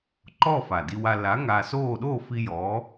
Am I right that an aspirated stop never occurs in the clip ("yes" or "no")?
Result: yes